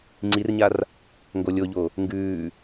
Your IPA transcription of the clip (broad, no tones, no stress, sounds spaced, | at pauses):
ŋ͡ǀ i r ɲ a r | ŋ ɡ o lʲ o ʎ o | ŋ ɡ ʉː